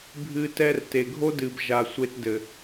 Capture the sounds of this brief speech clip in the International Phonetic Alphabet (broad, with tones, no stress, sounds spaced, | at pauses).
bʱ ɨ˦ t ɛ˦ r t e˨ ɡʱ o˦ d ɨ˨ b ʒ a˨ sʷ e˧ t d ɘ˨